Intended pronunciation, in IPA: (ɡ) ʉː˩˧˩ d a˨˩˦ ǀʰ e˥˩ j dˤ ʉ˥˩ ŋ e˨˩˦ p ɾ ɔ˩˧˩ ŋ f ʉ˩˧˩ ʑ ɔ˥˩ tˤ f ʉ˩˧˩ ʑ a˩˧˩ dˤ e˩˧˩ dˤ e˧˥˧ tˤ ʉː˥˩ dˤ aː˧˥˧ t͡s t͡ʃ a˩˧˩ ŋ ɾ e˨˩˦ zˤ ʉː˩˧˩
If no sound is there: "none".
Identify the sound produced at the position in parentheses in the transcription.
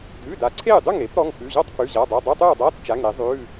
d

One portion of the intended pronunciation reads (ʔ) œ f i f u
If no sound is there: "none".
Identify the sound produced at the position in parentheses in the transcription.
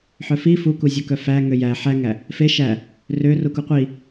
ħ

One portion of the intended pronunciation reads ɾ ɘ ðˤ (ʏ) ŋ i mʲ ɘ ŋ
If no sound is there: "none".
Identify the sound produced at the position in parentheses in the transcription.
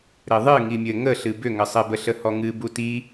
ɨ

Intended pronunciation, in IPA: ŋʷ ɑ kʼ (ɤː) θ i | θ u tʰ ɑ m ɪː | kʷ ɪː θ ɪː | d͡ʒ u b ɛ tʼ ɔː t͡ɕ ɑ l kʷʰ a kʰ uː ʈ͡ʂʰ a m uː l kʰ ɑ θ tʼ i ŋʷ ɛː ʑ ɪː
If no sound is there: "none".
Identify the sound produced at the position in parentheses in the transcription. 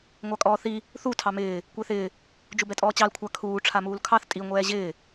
ɔː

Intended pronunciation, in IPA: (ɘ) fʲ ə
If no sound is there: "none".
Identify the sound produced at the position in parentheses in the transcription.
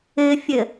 ɘ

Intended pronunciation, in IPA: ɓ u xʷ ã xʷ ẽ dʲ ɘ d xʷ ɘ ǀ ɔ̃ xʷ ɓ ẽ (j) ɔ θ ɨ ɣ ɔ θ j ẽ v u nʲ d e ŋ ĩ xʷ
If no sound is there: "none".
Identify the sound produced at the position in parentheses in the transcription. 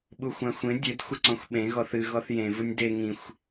ɣ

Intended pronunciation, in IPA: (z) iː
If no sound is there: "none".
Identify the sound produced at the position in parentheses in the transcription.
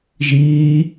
ʒ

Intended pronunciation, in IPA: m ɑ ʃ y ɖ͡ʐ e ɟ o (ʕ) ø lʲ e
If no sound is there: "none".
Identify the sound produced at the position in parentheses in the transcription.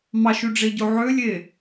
ʕ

